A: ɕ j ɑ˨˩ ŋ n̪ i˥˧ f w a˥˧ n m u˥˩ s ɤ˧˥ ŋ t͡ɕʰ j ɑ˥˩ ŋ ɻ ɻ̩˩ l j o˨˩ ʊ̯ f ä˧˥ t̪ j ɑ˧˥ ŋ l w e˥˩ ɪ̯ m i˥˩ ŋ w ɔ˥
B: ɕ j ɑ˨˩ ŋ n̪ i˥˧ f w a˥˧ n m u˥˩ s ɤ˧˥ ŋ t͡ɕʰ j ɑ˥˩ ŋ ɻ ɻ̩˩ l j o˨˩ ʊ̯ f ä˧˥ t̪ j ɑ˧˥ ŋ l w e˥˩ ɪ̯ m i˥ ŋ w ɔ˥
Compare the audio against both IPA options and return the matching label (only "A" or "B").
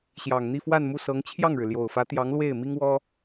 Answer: B